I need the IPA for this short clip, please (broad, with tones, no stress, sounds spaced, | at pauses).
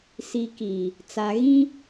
s i˨ k i˨ | t͡s a˨ ɣ ĩ˦